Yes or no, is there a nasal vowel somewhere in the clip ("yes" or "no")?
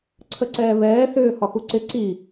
no